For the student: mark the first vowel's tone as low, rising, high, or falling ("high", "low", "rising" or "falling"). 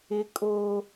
high